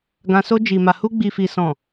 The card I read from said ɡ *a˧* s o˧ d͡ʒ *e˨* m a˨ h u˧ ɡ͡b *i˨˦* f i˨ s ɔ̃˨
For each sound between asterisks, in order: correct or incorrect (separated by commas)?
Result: incorrect, incorrect, incorrect